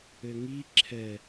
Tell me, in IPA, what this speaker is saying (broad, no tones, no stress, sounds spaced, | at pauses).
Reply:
ɘ ŋ i ǁʰ ɛ